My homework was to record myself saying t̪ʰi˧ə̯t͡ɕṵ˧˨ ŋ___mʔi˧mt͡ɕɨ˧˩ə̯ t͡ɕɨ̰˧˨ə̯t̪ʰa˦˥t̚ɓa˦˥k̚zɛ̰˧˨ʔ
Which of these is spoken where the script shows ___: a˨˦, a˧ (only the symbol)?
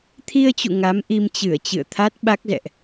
a˨˦